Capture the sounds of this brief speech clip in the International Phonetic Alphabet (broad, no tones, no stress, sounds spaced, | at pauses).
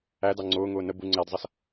æ d ɑ ŋ͡ǀ ʊː ŋ ʊː n ə b u ŋ͡ǀ æ d zˤ ʌ s